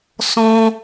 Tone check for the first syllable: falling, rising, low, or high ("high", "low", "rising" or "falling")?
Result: high